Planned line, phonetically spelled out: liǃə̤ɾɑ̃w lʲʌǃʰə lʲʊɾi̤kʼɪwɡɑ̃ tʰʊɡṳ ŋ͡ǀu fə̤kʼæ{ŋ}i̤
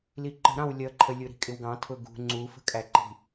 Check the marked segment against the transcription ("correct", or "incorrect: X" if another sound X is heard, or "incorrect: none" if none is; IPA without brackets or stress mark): incorrect: ǃ